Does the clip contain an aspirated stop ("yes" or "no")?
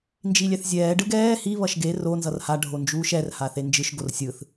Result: no